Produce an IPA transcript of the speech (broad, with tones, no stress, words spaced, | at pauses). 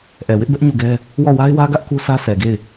ʔɛ˨wɪ˦ʔbɛ˦ʔ ɲu˦˨ɡɛ˦ | wɔ˦˨ wa˦ɪ̯wä˦ɡä˦ʔ ku˦sʰä˦ sʰɛ˨ɡe˦˨ɪ̯